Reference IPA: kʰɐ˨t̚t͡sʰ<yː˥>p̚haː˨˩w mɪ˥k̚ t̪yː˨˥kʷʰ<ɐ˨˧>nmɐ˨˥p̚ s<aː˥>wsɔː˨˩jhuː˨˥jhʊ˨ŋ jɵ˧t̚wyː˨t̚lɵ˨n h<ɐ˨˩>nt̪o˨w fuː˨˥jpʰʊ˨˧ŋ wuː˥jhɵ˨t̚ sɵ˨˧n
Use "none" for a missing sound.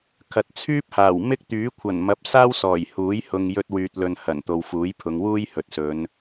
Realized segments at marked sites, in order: yː˥, ɐ˨˩, aː˥, ɐ˨˩

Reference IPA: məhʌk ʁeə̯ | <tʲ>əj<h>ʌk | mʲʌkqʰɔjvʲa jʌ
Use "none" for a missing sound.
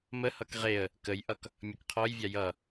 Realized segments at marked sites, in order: k, ʔ

